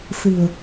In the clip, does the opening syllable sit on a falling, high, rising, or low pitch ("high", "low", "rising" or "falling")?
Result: low